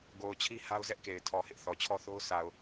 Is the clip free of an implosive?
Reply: yes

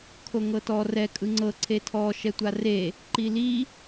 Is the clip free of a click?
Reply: no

